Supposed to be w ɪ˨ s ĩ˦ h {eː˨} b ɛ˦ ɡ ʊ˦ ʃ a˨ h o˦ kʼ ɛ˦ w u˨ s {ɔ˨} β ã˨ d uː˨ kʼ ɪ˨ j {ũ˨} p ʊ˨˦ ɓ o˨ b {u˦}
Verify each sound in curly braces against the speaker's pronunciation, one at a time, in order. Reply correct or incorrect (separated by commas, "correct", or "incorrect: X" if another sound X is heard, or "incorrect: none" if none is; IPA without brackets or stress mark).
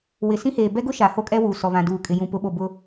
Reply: correct, correct, correct, incorrect: ʊ˦